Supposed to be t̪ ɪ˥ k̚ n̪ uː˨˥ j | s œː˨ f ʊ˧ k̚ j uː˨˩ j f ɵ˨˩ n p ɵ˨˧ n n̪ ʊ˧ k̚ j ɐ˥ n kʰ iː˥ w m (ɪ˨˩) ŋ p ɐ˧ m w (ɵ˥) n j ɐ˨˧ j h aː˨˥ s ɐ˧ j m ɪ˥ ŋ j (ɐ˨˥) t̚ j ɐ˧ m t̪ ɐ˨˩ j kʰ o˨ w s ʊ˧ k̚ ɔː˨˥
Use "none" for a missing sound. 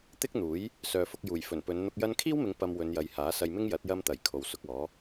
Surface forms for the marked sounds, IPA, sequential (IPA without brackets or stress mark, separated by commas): ɪ˨˧, ɵ˨˧, ɐ˨˥